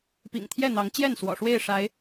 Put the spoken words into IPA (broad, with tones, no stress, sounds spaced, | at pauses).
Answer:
p ḭ˨˩ ŋ t̪ʰ j ɛ˥˨ n̪ ɑ˨˦ ŋ t͡ɕ j ɛ˥˨ n s w ɔ̰˨˩ ʂ w e˥˨ ɪ̯ ʂ a˨˦ ɪ̯